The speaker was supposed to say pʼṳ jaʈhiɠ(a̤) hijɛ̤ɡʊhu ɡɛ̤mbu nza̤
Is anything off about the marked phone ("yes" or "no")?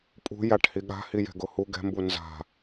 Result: no